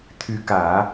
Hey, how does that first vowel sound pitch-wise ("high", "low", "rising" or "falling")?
rising